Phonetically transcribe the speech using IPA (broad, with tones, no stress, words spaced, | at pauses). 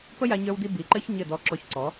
pə˦ja˧ɲə˞˧wdi˧ bi˨ǃɘ˦ç ɲɘ˦˨dɔ˧ǁɔ˧çǀɔ˨˦